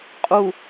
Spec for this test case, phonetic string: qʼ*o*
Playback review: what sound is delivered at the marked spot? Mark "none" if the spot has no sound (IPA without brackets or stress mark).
u